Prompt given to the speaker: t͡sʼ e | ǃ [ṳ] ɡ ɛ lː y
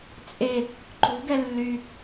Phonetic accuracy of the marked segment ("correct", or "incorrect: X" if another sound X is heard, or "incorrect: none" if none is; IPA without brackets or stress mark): correct